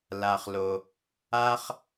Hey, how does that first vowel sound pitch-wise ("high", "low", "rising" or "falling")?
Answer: low